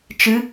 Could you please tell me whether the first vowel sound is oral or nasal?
oral